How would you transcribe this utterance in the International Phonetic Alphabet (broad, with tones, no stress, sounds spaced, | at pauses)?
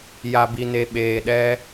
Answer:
j a˨ b i˨ n e˨ ɓ eː˨ ɗ ɛ˦